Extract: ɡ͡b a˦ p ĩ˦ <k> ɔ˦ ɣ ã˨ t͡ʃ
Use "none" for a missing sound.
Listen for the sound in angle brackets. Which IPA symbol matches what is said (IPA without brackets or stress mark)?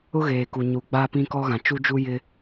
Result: k